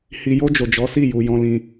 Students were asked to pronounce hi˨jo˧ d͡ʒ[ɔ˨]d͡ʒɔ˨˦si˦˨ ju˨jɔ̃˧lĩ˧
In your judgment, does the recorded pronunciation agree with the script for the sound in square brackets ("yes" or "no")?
no